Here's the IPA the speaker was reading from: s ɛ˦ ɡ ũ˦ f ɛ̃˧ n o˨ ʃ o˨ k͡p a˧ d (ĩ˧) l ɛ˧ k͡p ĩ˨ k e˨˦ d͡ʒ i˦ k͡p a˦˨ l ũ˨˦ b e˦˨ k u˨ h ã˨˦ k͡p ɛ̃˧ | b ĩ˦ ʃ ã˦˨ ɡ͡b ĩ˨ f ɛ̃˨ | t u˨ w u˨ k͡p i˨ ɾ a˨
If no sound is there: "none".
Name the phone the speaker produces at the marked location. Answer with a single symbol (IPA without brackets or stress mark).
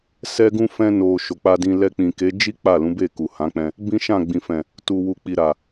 ĩ˧